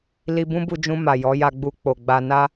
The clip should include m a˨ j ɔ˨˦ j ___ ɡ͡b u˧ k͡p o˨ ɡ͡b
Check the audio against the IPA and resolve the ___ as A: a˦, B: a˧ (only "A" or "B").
B